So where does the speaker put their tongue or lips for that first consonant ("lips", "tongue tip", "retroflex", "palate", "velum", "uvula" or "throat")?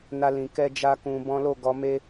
tongue tip